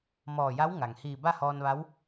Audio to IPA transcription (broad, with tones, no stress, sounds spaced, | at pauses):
m ɔː˧˩ j a˧˥ w ŋ a˩ ŋ h iː˧˩ b a˥˨ h ɔː˧ n ʋ a˧˥ w